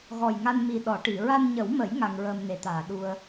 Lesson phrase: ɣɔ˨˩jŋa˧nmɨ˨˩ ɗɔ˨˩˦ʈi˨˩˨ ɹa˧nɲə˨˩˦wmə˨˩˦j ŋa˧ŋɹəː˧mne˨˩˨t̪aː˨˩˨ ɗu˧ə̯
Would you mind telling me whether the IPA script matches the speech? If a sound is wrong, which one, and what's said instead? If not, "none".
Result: ɨ˨˩ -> i˨˩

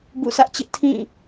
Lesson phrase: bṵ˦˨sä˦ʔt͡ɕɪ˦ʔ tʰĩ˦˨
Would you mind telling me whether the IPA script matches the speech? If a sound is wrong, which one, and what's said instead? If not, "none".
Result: none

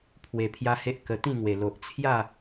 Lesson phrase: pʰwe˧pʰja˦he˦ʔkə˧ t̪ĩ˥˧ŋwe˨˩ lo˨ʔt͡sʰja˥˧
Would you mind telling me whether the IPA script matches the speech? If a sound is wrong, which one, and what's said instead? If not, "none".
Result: none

